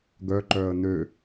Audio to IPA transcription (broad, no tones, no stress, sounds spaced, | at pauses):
ɡ œ ǃ œː ə̯ n ø